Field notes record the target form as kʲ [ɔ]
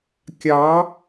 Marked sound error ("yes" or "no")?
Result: yes